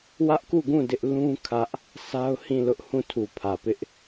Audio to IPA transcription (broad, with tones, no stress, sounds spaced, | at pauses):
w ä˦ ʔ k u˦˨ ɡ ũ˦˨ d ɪ˦ ʔ l ũ˦ kʰ ä˦ ʔ | sʰ a˦ ʊ̯ h ĩ˦˨ l ʊ˦ ʔ h ũ˦˨ tʰ u˨ pʰ ä˨ p ɪ˦ ʔ